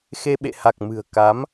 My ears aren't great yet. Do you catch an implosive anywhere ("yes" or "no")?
yes